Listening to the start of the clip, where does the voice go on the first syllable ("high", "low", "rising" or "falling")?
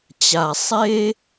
low